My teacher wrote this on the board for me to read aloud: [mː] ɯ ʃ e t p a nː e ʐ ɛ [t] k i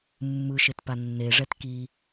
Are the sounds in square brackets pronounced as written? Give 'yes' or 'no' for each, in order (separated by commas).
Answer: yes, yes